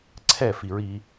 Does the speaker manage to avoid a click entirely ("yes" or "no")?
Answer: no